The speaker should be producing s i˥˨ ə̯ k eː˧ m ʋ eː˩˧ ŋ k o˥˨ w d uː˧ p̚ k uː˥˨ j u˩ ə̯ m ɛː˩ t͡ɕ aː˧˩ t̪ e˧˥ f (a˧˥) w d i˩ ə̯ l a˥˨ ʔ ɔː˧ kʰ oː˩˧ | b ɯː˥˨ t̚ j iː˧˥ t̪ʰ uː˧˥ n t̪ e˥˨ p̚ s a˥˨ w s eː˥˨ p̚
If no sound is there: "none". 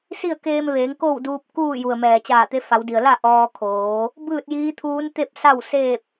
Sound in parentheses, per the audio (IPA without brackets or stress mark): a˩˧